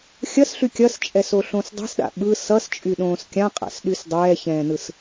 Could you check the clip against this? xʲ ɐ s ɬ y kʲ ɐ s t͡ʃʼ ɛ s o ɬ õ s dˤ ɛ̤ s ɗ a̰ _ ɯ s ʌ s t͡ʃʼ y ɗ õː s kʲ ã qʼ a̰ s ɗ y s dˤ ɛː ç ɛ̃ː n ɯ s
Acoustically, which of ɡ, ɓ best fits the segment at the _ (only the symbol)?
ɓ